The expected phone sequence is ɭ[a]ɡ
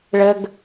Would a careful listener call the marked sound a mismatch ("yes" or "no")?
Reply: yes